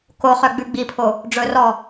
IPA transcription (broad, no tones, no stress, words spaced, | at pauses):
koχœ ɡ͡bʉɡ͡bipʰo | ɖ͡ʐɵrɔ